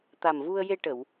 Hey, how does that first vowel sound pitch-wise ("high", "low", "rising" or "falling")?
low